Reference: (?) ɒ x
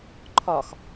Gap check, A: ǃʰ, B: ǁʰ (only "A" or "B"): A